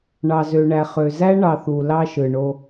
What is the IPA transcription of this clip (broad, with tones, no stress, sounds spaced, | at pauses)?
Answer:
ɳ ɑ˨ z ø˨ ɳ æ˨ χ ø˨ z æ˦ ɳ ɑ˨ θ u˨ l ɑ˦ ʃ ɯ˨ ɳ o˦